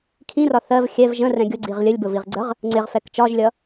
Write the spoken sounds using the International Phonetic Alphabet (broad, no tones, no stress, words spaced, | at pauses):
kʰĩrɒ θɜv xʲɛv ʒə̃rɛ̃ ɡʲʊɡ͡ǀiʁ lʲəlʲbʊviʁɡ͡ǀəʁ | ŋ͡ǀɪʁfɛk t͡ʃɒʒlʲʌ